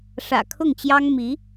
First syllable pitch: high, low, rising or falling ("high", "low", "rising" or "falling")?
low